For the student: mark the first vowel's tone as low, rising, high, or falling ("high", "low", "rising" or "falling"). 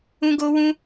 high